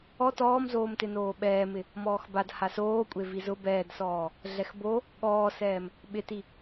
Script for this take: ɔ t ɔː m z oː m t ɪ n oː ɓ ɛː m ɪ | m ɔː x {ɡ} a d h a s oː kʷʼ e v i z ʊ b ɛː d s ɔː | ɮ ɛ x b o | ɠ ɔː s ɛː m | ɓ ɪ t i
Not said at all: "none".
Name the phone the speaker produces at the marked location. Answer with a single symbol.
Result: b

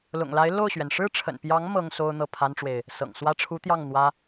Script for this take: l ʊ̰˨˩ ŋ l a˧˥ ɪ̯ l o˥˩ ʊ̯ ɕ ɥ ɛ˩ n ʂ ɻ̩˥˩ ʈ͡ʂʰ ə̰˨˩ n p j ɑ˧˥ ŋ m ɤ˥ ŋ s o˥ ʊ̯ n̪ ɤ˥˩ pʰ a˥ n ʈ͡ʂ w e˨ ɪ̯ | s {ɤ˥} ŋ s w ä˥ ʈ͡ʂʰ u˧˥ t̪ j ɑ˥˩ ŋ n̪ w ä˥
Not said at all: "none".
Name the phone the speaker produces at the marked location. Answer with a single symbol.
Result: ɤ̰˨˩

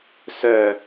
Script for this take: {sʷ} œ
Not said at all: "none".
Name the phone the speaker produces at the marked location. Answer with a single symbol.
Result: s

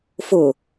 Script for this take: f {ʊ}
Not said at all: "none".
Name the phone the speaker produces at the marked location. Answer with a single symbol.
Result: ʊ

